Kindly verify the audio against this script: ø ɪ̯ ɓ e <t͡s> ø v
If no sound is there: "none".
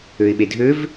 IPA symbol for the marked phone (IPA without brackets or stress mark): dʱ